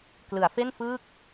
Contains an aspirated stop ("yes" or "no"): no